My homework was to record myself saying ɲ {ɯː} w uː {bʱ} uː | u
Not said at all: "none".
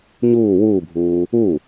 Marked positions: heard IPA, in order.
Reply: uː, bʱ

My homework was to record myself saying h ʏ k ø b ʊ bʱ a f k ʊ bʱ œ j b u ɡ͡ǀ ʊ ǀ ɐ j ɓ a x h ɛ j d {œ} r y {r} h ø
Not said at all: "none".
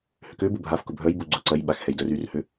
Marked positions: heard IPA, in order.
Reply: œ, r

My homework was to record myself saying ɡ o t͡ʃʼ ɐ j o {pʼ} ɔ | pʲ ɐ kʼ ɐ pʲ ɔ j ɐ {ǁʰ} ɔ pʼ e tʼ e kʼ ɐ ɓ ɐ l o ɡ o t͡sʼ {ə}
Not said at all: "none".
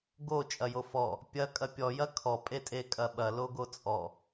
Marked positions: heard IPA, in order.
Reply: f, kʰ, ɔ

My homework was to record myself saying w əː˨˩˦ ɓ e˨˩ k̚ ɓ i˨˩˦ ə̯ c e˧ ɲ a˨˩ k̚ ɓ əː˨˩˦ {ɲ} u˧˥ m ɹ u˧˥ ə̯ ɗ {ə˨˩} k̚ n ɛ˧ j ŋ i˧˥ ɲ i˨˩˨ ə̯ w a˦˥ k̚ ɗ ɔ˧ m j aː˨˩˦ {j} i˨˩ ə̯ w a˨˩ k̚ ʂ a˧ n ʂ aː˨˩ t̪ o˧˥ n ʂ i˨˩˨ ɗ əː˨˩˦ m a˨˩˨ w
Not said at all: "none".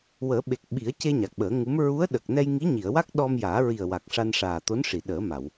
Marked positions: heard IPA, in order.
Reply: ŋ, ə˨˩, ɹ

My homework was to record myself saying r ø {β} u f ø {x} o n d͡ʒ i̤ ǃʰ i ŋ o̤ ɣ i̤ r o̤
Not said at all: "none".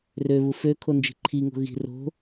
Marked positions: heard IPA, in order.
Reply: β, kʰ

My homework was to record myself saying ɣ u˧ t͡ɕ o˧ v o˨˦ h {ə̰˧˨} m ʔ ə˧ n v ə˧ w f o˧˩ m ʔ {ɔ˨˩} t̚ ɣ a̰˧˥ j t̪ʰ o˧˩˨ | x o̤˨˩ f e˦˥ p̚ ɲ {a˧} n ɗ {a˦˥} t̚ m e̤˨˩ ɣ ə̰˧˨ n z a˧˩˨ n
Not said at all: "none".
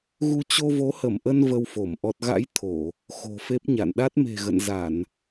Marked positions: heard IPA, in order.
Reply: ə˧˩, ɔ˨˩, a̰˧˨, a˦˥

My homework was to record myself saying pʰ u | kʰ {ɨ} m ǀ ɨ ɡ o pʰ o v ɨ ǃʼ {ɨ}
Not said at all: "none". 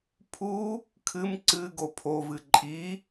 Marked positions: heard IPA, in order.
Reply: ɨ, i

